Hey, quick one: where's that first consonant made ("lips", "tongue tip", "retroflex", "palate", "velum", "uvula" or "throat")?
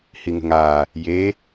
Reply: throat